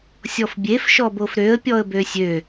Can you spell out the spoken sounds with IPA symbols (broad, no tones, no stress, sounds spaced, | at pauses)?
sʲ ɔ f bʲ e f ʃ ɔ b o f ɾ ø ə̯ pʲ ɔ ə̯ b ø sʲ ø